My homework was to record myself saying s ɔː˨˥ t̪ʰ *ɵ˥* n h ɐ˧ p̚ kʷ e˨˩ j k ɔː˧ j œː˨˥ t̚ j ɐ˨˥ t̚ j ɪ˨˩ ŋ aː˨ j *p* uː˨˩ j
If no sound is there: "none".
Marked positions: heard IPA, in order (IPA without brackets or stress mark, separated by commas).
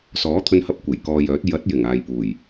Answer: ɵ˧, p